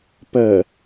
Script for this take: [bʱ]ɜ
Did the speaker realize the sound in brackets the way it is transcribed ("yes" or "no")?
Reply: no